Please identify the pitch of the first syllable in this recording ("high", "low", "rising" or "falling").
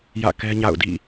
falling